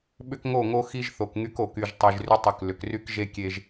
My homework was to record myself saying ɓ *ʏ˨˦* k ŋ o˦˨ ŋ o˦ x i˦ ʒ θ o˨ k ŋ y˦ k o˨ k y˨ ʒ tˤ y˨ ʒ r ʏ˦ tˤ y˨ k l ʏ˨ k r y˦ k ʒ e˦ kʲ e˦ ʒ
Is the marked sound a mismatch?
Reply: yes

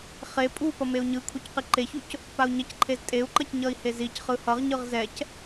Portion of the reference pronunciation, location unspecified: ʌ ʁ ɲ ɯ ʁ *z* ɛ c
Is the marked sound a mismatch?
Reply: no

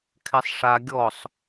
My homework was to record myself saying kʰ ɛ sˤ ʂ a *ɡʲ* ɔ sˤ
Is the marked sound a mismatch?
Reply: no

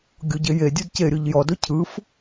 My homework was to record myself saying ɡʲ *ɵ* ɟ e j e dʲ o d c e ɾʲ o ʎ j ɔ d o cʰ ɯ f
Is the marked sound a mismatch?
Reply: yes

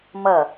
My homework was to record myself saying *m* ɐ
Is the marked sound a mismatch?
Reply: no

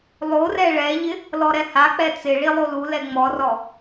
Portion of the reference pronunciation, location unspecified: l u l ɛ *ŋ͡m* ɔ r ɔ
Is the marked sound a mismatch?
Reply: no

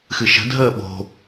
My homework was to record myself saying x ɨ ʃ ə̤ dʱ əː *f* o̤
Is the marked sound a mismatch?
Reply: yes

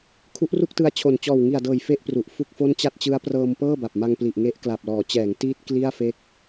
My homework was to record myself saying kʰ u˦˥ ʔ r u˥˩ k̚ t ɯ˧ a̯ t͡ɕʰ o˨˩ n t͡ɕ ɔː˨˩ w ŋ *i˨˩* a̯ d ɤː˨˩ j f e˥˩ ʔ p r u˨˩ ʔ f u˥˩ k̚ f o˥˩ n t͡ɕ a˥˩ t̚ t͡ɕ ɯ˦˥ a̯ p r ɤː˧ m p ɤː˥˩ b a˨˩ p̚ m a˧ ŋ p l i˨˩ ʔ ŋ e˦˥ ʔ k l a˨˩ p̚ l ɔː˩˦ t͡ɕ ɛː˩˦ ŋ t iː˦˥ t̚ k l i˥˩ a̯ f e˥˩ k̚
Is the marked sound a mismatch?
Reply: no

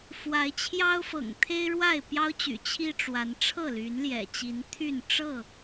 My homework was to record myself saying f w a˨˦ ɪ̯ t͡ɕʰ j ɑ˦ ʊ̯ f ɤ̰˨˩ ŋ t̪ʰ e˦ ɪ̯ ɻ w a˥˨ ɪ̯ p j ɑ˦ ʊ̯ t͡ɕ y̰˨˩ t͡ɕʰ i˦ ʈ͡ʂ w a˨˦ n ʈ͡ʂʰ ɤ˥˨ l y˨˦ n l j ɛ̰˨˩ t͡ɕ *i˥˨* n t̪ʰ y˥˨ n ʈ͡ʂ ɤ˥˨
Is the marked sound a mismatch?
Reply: yes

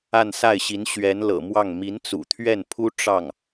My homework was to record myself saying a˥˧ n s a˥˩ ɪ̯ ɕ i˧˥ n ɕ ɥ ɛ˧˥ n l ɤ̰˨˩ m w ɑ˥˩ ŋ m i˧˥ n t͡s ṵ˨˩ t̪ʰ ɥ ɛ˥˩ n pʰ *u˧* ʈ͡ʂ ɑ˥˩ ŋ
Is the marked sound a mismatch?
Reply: yes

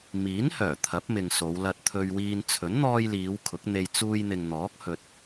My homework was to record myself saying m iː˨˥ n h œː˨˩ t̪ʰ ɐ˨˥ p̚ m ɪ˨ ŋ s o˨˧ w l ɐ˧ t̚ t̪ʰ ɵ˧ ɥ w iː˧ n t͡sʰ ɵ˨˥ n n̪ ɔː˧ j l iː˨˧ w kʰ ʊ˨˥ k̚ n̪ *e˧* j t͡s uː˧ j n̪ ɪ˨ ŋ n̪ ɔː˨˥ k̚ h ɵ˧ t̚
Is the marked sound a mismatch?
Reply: no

